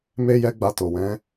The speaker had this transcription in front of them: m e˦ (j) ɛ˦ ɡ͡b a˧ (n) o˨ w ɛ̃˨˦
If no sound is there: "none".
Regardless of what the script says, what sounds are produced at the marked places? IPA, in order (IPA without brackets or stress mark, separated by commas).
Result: j, t